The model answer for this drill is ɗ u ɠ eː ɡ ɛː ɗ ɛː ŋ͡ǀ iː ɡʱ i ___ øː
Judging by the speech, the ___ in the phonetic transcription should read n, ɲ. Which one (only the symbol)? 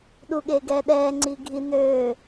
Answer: n